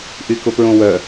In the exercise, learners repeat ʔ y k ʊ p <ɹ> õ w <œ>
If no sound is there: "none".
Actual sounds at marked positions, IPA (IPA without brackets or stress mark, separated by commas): ɹ, œ